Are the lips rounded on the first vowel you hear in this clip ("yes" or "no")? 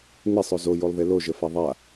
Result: no